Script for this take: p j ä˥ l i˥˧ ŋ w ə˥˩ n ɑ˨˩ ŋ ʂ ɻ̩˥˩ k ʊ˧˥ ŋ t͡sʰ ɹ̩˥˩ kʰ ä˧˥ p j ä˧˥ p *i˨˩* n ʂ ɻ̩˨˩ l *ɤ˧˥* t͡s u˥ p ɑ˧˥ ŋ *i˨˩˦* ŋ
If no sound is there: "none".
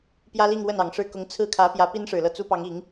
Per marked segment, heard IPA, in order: i˥, ɤ˥˩, i˨˩˦

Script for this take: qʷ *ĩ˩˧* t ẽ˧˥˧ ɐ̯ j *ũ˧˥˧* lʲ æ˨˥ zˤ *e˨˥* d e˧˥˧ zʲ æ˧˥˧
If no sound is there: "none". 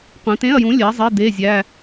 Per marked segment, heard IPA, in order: ĩ˩˧, ũ˨˥, e˧˥˧

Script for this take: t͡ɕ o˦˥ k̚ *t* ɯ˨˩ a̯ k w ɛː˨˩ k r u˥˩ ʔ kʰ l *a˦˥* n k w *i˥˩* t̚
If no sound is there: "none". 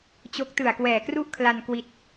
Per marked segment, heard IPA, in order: t, a˧, i˥˩

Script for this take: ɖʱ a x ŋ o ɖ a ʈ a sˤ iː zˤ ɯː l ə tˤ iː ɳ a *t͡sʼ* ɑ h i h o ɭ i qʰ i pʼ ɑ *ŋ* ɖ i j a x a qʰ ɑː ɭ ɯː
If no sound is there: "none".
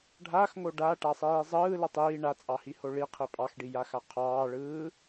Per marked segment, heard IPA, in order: t͡sʼ, x

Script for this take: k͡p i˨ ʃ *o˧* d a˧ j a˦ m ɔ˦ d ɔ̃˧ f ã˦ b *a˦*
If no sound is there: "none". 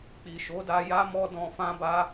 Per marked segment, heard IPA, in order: o˨˦, a˦

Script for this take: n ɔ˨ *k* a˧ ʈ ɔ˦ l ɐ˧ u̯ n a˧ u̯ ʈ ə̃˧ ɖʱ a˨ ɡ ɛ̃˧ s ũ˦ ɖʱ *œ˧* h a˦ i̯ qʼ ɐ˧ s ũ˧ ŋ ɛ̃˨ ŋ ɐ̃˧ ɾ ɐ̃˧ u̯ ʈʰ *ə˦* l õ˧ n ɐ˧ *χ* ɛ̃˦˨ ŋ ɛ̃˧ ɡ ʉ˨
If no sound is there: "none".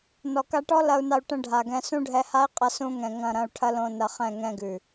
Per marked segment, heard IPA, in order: k, ɛ˧, ɐ˦, χ

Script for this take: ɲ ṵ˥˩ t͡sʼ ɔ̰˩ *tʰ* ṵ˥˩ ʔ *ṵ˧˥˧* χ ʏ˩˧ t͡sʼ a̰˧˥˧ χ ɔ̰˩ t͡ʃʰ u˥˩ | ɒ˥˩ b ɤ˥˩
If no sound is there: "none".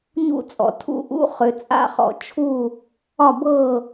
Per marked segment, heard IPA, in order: tʰ, ṵ˧˥˧

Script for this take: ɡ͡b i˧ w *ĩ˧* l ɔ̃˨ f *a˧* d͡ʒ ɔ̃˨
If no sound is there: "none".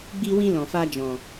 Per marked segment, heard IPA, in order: ĩ˧, a˧

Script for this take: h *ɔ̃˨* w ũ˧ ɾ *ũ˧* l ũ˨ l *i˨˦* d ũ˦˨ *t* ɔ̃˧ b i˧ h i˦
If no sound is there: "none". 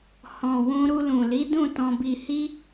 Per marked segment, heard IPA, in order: ɔ̃˨, u˧, i˨˦, t

